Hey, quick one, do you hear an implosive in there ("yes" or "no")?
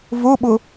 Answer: yes